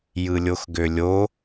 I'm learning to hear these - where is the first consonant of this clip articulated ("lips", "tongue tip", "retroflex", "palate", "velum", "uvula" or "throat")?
palate